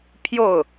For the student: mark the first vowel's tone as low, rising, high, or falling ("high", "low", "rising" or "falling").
falling